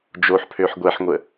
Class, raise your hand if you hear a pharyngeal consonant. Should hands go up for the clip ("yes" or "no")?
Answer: yes